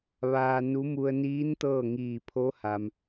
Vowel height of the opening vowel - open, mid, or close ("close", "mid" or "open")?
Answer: open